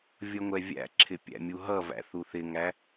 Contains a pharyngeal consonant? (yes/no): no